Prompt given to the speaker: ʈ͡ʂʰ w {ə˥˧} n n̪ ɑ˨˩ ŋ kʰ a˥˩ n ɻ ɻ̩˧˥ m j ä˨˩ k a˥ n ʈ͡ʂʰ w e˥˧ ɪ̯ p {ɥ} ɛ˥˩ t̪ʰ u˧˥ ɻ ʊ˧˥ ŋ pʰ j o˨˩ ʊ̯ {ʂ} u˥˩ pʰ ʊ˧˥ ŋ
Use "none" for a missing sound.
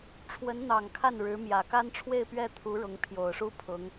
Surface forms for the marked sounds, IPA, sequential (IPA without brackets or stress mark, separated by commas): ə˧˥, ɥ, ʂ